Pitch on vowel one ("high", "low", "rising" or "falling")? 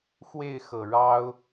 falling